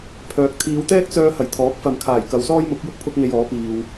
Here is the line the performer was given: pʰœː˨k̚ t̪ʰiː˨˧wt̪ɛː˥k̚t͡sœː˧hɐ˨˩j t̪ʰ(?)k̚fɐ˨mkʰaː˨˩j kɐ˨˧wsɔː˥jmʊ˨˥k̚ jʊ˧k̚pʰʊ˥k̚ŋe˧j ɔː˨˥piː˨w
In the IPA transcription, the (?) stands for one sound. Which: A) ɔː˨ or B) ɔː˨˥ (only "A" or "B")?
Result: B